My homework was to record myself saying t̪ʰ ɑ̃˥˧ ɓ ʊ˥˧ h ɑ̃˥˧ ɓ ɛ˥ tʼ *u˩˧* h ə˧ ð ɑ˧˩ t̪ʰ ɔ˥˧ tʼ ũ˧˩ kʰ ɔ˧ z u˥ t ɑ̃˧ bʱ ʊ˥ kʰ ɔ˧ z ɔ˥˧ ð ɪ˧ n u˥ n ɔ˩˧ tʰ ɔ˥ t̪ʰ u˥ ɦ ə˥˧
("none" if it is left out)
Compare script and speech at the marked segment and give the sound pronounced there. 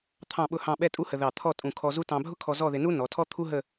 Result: u˥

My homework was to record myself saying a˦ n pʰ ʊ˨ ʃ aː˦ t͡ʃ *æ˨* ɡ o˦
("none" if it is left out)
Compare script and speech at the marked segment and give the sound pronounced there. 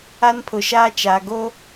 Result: a˨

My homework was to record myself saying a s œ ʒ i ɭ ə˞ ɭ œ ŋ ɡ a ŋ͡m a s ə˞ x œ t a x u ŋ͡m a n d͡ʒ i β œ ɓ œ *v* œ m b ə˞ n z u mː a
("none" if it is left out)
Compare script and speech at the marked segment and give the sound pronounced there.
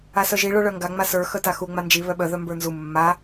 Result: ð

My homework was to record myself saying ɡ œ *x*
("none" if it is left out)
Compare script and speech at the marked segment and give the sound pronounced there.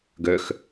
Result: x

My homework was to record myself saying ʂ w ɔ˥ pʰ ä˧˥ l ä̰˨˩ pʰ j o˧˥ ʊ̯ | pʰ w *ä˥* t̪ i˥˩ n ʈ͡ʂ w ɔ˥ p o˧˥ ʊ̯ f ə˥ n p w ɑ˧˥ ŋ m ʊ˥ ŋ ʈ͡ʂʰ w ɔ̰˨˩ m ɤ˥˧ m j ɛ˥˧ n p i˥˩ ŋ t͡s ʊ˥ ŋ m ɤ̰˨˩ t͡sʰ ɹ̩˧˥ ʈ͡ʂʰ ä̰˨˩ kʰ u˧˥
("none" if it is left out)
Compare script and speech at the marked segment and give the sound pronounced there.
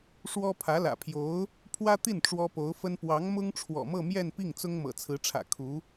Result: ä˥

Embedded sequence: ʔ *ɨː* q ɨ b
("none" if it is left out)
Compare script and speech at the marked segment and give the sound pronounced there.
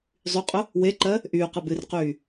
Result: yː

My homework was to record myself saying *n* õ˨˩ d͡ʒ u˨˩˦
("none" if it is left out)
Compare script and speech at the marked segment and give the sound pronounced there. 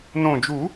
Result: n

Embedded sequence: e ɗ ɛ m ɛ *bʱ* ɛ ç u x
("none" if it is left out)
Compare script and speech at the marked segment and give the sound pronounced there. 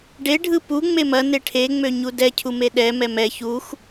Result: m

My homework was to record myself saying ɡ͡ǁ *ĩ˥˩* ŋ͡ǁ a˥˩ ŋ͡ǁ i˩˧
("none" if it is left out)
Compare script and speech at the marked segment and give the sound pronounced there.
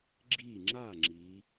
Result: i˥˩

